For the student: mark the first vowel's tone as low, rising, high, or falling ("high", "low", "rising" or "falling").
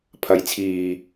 rising